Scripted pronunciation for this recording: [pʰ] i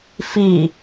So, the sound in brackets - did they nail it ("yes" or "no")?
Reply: no